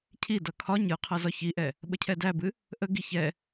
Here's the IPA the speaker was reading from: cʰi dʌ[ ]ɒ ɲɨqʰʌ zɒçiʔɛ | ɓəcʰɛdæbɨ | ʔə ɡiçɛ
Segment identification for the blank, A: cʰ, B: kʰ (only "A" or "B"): B